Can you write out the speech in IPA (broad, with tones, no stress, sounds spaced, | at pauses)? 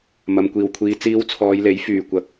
m ɐ˨ m kʷ iː˨˩ w kʷʰ iː˧ t͡s iː˧ w t͡sʰ ɔː˨˧ j l e˨˥ j f yː˨˩ kʷ ɐ˨˥ k̚